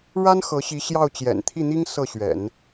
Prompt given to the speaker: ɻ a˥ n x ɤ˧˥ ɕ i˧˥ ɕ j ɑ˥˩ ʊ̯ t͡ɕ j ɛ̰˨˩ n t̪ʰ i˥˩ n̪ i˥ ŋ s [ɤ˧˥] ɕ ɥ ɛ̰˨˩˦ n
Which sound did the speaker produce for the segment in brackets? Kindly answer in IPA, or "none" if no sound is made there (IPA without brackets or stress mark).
ɤ˥˩